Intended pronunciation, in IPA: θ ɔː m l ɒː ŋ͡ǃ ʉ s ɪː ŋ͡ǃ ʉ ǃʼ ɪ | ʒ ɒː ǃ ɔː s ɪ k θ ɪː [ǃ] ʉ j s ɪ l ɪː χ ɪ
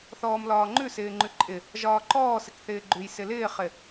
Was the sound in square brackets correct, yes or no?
no